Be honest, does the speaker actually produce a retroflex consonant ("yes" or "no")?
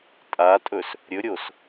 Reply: no